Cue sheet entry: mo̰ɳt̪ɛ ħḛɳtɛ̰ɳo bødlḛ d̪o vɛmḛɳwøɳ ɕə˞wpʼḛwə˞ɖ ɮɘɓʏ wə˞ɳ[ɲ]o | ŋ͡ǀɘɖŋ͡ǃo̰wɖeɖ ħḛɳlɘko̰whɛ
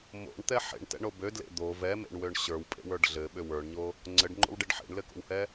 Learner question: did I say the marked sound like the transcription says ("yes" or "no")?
yes